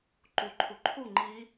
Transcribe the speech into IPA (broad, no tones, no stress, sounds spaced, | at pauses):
ǃ u ǃʰ u ǃʰ u ŋ͡ǃ i